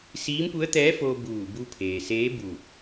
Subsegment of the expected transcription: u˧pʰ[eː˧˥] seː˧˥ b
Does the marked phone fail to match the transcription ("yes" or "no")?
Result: yes